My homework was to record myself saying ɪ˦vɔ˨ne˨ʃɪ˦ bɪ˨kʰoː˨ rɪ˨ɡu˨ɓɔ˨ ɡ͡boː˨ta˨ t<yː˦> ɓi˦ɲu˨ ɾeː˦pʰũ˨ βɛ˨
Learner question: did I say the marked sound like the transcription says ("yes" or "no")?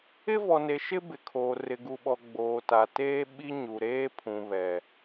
no